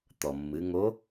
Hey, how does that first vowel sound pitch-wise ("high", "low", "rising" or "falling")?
low